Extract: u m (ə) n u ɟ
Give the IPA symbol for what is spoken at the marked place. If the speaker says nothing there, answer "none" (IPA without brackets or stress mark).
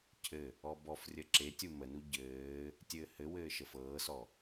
ə